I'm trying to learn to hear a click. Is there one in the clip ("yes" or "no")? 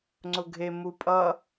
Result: yes